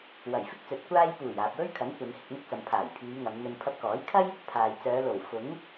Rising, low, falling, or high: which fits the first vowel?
low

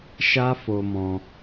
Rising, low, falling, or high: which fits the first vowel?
high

